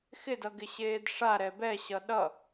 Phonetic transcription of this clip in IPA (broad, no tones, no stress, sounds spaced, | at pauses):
x ɪ d ʌ ɡ ɪ ɕ eː d ʂ a ɾ ɛ b ɛ ɕ ʌ ɗ ʌ